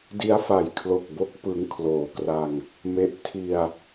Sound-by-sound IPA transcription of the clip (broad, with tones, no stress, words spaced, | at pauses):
di˦˥a̯fa˨˩jkʰlo˨˩k̚bo˦˥k̚ pɯ˦˥ŋkʰloː˨˩kra˧ŋ | me˦˥ʔ tʰi˧a̯